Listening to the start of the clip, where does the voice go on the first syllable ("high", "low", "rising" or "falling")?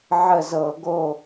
falling